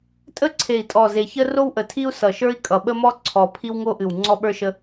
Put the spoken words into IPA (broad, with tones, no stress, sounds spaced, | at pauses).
tʼ ə˥ ǀʰ e˨˩ i̯ tʼ ɔ˨˩ z e˨˩ ç ə˥ r o˥ w ʔ ə˨˩ tʰ i˥ u̯ s ʌ˨˩ ʃ ə˞˥ i̯ kʼ ʌ˨˩ ɓ ə˥ m ɔ˥ ǀʰ ɔ˨˩ pʰ i˥ w ŋ o˥ ʔ ɨ˨˩ w ŋ͡ǀ ɔ˥ ɓ ə˞˥ ʃ ə˥